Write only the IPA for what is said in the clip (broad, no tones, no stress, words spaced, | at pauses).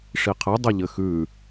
ʂiqʰɘ dˤɘʎɘxʉ